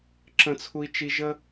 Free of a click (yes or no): no